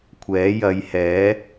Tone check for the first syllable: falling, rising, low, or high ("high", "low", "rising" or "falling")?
rising